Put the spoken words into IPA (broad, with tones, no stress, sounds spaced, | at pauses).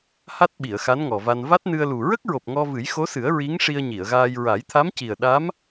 h a˦˥ t̚ ɓ i˨˩˨ ə̯ x a˧˥ n ŋ ɔ˨˩ v a˧ n v a˦˥ t̚ n ɨ˧ ə̯ l u˨˩ ɹ ə˦˥ k̚ ɹ o˨˩ p̚ ŋ ɔ˧ v ɨ˨˩˦ j x o˧˥ s ɨ˨˩˦ ə̯ ɹ i˧˥ ŋ ʂ i˧ ə̯ ɲ i˨˩˨ ə̯ ɣ aː˧ j ɹ a˨˩˦ j t̪ʰ a˧˥ m c i˨˩ ə̯ ɗ a˧˥ m